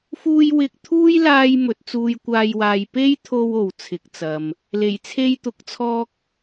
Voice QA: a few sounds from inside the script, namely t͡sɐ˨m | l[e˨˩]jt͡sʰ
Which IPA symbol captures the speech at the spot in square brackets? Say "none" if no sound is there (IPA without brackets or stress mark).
e˨˩